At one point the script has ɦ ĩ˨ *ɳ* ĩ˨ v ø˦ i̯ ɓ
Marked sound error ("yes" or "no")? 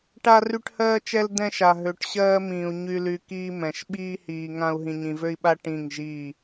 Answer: yes